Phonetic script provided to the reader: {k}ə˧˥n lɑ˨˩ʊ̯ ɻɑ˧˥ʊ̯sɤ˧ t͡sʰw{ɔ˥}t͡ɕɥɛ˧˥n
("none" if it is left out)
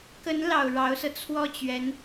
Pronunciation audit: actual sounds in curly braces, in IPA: k, ɔ˥˩

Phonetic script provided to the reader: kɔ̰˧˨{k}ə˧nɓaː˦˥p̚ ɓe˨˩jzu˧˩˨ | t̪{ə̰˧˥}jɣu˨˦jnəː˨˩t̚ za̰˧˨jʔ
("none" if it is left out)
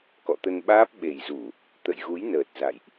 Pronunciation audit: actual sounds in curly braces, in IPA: t̪, ə̰˧˨

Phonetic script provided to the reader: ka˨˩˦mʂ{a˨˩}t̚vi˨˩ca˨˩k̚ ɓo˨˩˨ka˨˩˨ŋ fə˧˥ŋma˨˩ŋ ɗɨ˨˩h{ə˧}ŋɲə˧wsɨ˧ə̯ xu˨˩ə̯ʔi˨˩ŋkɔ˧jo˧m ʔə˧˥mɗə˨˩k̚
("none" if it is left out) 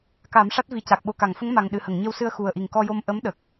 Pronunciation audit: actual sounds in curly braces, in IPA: a˦˥, ə˨˩˨

